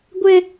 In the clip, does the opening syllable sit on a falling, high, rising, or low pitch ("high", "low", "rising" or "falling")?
high